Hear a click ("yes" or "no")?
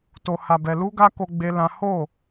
no